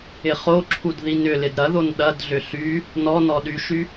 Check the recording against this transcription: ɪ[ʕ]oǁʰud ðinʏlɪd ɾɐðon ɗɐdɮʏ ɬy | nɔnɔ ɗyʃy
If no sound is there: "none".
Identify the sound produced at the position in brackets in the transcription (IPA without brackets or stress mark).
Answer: χ